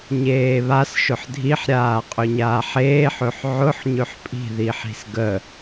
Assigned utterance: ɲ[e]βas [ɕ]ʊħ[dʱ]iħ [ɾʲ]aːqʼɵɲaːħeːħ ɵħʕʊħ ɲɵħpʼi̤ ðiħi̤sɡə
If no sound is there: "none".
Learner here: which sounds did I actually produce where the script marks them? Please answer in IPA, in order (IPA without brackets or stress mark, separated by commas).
eː, ʃ, dʱ, ɾʲ